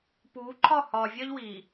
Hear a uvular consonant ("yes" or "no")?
no